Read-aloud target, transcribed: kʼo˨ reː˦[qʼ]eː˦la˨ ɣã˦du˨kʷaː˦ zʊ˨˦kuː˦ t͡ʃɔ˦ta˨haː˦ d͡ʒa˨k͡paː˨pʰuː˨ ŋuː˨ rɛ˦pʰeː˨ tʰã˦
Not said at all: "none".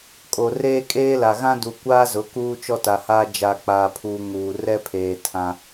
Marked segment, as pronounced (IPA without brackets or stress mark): kʼ